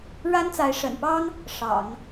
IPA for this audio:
ɻa˥nt͡sa˧˥ɪ̯ʂə̰˨˩npɑ˥ŋ | ʂɑ̰˨˩˦ŋ

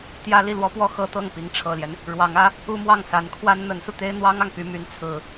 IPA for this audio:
t̪jä˥ li˥˩lwɔ˥pwɔ˥˩ xɤ˥t̪ɤ˥˩ŋ pi˧˥ŋʈ͡ʂʰɤ˨˩ljɛ˦n | ɻwɑ˧˥ŋä˧˥ | u˥mwɑ˥˩ŋ sa˧˥nkʰwa˥n n̪ə˧˥nsu˧ t̪e˥ɪ̯n̪wɑ˥ŋɑ˨ŋ py˧˥my˧˥nt͡sʰɹ̩˨˩˦

